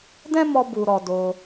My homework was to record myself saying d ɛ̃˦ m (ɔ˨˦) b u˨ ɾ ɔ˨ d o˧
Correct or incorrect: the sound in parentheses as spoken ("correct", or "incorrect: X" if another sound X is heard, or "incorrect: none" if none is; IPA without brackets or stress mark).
incorrect: ɔ˧